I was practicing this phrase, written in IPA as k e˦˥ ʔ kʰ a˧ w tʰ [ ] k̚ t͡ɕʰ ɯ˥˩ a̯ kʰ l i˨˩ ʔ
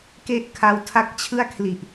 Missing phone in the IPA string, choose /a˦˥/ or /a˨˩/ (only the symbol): a˦˥